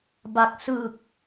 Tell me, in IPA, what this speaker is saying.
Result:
b a˨˩ k̚ s ɯ˨˩ k̚

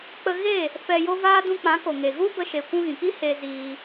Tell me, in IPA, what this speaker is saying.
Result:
k͡p ə˧ ɣ e˦˨ | f ɛ˧ j o˦ v aː˦ d ũ˧ k͡p ã˨˦ k o˨ ŋ e˨ ɣ u˦ b ə˧ ʃ e˨ kʷ ũ˧ ɣ ĩ˨ k i˦ h e˧ z iː˧

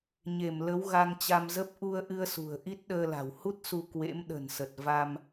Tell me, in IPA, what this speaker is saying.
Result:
ɲ e˧˩ m l ə˨˦ w ɣ a˧ ŋ t͡ɕ a˧ m z ə˦˥ p̚ ʔ u˧ ə̯ ʔ ɨ˧ ə̯ s ṳ˨˩ ə̯ ʔ i˦˥ t̚ ɗ əː˧ l a̤˨˩ w h u˦˥ t̚ s u˧ k w ḛ˧˥ m ɗ ə̤˨˩ n s ə˨˩ t̚ v a˧ m

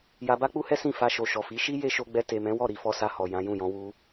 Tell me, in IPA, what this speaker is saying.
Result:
j a˧ b a˦ k͡p u˦ h ɛ˦ s ĩ˦˨ f a˧ ʃ o˨ ʃ ɔ˨ f i˨˦ ʃ i˦ j e˦ ʃ o˧ ɡ͡b ɛ˧ t e˨ m ɛ̃˨˦ w ɔ˦˨ ɾ i˨˦ f ɔ˧ s a˧ h ɔ˨ j ã˨˦ j ũ˦˨ j ɔ̃˧ w u˧

